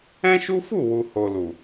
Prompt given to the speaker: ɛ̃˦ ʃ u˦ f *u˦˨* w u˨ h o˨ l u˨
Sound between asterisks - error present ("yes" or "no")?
no